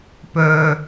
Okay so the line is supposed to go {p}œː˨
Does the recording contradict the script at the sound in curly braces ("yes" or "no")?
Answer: no